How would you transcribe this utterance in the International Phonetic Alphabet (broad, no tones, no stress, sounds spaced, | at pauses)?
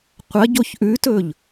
qʷ ɐ ɟ o ç ʔ ʉ t ɵ ʎ